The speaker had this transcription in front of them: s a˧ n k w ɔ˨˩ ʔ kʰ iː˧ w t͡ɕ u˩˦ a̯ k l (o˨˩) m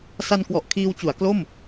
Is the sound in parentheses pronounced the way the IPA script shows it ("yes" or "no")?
no